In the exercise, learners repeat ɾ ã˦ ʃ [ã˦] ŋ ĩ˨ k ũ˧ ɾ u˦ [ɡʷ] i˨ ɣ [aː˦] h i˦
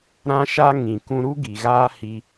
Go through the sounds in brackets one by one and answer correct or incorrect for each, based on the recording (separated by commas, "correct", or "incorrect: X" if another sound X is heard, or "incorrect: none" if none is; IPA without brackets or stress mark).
incorrect: a˦, incorrect: ɡ, correct